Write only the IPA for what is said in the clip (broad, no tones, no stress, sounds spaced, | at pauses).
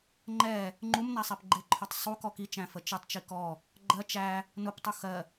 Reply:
ŋ͡ǃ ɛ | ŋ͡ǃ u m n æ sˤ ɛ p ɡ͡ǃ ɪ ǃʰ ʊ tˤ sˤ u k ɔ k i t͡ʃ æ̃ f ə t͡ʃ ɪ tˤ t͡ʃ i k ɔ | ɡ͡ǃ ɜ t͡ʃ æ | n ʊ p tˤ u x ɜ